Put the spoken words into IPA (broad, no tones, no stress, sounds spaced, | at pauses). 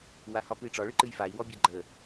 w a h ɒ p ɨ i̯ ʈ͡ʂ ɒ ɭ ɨ ǃ ɨ j f a i̯ w ɔ bʲ a ɡ͡ǃ ə